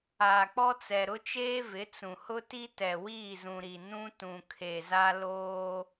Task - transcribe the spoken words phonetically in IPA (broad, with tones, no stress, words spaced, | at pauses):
aː˨k͡pɔ˦t͡sɛ˨ ɾʊ˦t͡ʃeː˦ vɪ˨˦t͡sũ˨hʊ˦ti˦ tɛ˨wiː˦˨zũ˨ɾi˨ nũ˦ tũ˨kʰe˨za˦ loː˦